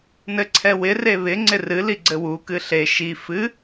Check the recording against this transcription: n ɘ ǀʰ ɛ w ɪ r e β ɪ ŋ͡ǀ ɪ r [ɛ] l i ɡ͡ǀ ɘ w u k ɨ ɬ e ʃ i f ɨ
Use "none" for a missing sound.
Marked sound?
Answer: ɨ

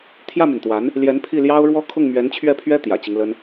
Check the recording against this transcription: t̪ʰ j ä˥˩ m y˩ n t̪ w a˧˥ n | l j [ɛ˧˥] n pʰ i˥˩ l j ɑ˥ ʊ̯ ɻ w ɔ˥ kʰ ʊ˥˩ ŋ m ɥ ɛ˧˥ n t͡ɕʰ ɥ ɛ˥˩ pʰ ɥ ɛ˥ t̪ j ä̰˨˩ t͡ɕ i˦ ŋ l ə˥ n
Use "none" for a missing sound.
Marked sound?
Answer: ɛ˧˥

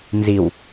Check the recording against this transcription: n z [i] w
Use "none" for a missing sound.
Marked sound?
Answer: i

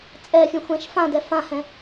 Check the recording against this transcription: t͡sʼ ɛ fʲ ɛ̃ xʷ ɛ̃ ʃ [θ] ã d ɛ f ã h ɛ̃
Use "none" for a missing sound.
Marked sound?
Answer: f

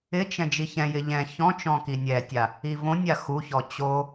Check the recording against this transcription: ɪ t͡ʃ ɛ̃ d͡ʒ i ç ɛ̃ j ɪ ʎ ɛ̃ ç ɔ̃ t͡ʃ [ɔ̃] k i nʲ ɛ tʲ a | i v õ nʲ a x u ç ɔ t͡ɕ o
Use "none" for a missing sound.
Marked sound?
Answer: ɔ̃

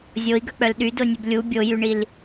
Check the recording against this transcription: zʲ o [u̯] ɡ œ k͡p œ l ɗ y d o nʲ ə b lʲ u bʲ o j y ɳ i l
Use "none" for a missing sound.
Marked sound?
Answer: i̯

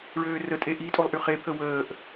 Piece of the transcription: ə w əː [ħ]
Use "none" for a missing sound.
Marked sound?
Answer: ʔ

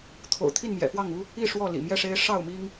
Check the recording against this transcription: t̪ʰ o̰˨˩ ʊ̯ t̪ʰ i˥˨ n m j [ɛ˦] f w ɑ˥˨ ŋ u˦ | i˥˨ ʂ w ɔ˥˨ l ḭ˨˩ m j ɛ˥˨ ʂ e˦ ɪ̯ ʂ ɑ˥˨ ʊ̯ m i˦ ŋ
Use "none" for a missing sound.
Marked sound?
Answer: ɛ̰˨˩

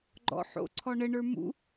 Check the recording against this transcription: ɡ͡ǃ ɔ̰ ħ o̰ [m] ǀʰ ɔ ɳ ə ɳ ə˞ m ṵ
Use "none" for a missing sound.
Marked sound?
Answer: none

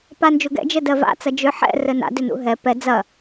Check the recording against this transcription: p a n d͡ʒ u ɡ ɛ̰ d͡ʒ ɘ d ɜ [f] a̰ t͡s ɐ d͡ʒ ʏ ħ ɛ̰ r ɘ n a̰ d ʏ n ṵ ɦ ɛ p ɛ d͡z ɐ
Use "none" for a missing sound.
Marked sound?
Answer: v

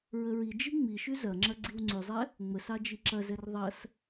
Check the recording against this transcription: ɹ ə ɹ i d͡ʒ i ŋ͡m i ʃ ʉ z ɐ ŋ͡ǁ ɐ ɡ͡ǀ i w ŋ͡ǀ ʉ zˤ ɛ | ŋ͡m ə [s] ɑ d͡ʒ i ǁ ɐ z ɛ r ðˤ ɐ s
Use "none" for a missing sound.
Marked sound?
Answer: s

